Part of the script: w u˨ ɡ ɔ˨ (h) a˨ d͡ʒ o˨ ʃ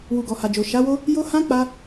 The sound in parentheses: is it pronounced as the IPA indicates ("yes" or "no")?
yes